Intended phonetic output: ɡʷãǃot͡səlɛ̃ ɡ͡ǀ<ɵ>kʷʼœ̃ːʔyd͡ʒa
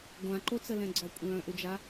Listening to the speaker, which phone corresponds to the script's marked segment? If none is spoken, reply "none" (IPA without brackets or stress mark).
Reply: ɔ